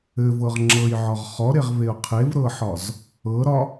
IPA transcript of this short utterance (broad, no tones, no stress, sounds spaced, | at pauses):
ɘ v ɤ ʁ ŋ͡ǁ ɤ j ʕ ɒ ʁ χ ɔ ɾ e ʁ v e ʊ̯ qʰ e v ɾ ɤ ħ ɒ z | ɤ ɾ ɒ